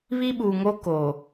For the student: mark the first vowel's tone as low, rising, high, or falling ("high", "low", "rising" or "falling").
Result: high